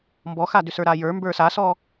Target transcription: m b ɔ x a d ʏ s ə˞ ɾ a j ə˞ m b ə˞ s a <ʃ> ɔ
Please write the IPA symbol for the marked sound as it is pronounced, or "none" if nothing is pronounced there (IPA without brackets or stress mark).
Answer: s